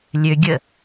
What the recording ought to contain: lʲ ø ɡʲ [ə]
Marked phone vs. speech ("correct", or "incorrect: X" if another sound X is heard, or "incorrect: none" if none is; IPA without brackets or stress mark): correct